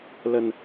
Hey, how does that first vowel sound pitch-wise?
low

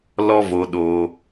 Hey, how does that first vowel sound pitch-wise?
high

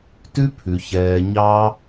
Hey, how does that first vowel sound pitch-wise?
high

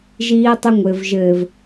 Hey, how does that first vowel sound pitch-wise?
high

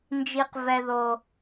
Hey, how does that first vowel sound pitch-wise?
high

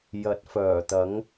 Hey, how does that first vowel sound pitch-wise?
rising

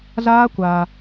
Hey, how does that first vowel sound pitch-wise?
high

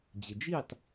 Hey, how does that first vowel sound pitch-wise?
low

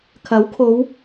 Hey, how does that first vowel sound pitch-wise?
rising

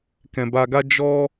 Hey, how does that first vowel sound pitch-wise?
low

